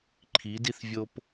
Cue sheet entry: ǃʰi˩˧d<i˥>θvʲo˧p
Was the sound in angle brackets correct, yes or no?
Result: no